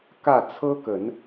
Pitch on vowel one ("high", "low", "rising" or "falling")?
falling